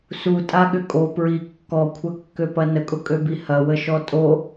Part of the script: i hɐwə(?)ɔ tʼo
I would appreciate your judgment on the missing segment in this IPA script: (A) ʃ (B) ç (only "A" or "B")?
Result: A